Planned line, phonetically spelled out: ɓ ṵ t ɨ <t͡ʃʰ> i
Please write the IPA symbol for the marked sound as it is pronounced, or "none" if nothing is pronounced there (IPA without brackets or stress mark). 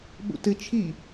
t͡ʃʰ